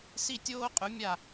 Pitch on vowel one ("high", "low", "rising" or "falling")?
falling